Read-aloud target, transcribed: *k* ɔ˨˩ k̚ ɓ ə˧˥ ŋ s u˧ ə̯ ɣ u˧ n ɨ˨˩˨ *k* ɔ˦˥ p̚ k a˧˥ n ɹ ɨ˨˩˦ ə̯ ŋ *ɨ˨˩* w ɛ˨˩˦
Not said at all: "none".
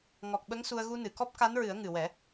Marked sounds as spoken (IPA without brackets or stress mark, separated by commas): ŋ, k, ɨ˨˩